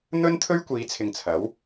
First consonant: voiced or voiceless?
voiced